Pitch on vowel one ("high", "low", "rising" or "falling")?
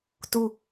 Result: high